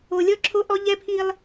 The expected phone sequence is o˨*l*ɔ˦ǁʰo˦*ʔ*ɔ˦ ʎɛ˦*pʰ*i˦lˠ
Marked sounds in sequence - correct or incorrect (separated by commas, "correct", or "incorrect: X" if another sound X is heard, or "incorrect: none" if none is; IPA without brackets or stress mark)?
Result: incorrect: lʲ, correct, correct